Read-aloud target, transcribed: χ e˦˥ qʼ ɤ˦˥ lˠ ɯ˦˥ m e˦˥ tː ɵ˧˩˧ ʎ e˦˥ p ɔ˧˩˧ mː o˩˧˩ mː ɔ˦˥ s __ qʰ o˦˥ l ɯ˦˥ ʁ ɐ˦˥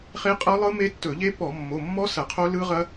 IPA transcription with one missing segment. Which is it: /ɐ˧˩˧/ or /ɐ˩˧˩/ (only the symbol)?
ɐ˧˩˧